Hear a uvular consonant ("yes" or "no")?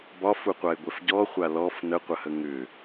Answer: yes